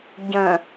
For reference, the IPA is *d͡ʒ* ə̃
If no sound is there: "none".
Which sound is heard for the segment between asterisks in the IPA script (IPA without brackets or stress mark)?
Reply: ɟ